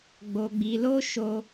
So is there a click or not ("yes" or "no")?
no